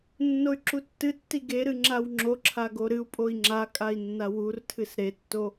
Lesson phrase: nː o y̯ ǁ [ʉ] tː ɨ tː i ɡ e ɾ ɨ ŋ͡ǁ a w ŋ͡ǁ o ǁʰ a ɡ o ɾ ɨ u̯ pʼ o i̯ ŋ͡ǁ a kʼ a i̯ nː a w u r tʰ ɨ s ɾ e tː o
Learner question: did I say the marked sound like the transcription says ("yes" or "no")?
no